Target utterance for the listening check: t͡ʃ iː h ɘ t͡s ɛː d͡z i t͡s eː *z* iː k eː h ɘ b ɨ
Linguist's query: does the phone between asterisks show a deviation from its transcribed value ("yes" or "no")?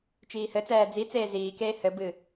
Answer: no